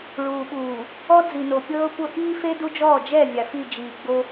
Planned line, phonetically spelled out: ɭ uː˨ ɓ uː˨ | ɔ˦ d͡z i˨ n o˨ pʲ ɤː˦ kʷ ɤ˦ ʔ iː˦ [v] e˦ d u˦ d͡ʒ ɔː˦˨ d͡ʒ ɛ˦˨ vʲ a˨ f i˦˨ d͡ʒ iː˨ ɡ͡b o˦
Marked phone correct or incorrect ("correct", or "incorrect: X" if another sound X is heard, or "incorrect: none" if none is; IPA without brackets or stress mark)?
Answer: incorrect: f